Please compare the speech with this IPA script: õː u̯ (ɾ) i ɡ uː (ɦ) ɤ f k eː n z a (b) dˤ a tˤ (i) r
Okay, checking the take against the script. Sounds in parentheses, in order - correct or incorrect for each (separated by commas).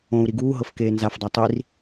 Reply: correct, correct, incorrect, correct